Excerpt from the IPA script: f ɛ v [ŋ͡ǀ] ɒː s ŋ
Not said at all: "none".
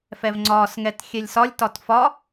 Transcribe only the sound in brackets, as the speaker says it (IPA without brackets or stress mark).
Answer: ŋ͡ǀ